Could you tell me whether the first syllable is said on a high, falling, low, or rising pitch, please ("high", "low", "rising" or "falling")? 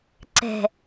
low